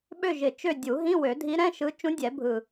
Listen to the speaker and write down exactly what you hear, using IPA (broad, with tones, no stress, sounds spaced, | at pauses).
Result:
ɓ ø˦˨ ʒ ɪ˨˩ t͡ʃ ø˦˨ dʲ u˨˩˦ ɦ ĩ˧˥˧ w ø˨˩˦ dʱ i˧˥ ɾ ɛ̃˧˥˧ ʃ ɯ˧˥ t͡ʃ ũ˧˥ dʲ ɛ˨˩˦ bʱ ɯ˨˩